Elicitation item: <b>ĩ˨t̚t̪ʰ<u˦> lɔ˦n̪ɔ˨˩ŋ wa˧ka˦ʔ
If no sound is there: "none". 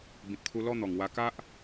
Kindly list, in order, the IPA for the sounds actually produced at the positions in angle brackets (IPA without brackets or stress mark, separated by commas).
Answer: b, u˧